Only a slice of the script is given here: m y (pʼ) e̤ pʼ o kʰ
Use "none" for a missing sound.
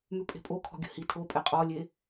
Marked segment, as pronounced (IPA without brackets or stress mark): pʼ